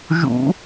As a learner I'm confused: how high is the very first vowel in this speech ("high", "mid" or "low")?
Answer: high